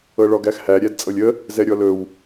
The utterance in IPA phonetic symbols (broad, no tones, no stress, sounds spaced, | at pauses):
ɤ ɭ ɔ ɡ æ x h æ ɾʲ æ d t͡sʼ ɤ lʲ ə | z ɛ ɾʲ ɔ l ɵ w